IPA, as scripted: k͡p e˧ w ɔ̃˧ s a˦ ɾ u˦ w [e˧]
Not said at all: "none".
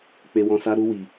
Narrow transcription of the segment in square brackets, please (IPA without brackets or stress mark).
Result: i˧